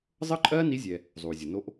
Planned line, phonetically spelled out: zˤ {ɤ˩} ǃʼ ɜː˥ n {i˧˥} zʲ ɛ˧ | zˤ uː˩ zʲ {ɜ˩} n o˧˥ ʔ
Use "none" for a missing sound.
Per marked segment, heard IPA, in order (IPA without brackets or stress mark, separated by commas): ɤ˥, i˧˥, ɜ˩